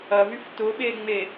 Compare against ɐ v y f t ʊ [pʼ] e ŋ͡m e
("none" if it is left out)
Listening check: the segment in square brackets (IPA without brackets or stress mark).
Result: ɓ